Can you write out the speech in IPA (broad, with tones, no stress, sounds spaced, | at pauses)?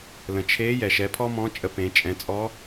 l ə̃˩ t͡ʃʰ e˧˥ j ɛ˩ ʃ ɛ˩˧ pʰ ɔ˥ m ɔ̃˧˥ t͡ʃʼ ə˧ p ẽ˩˧ t͡ʃʼ ɛ̃˩˧ t͡sʼ ɔ˧˥